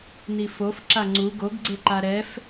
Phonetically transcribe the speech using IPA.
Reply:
n i f o f ǁ a ŋ͡ǀ u ɡ o ɡ ɡ͡ǀ e ǃ a ɾ ɛ f

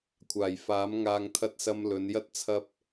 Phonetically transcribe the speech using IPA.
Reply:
kʷʰ aː˨˩ j f aː˨˥ m ŋ aː˧ ŋ t̪ʰ ɐ˧ t̚ s ɐ˧ m l ɵ˨˧ n j ɐ˥ t̚ t͡sʰ ɐ˧ p̚

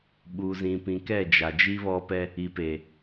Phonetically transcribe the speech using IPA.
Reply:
ɓ u˨ z ĩ˨ p ĩ˨ k ɛ˦˨ d͡ʒ a˨ d͡ʒ i˦ β ɔ˦ p ɛ˦ | i˨ p e˨

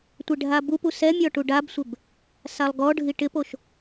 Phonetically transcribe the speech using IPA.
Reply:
tʷ e ɖʱ a b u p u s ɛ mʲ ɔ ʈ u ɖ a b sʷ ɪ b | s a lˠ ɡ ɔ ɖʱ i ʈ ɪ p o ʃ

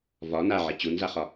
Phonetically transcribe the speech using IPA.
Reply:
v ɒ n a ʕ i t͡ɕ u n z a χ ɒ

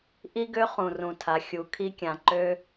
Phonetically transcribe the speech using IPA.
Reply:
ʔ i˦ ɡ ø˦ χ ũ˨ r ũ˨ tʰ a˨ xʲ u˨ kʰ i˧ kʲ ã˨ ǃ ø˧

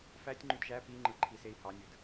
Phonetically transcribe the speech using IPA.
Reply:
f æ tʲ ŋ͡ǃ y d ʒ æ p i ŋ͡ǃ ɯ ǃʰ i s e i̯ h ɑ nʲ ɯ d

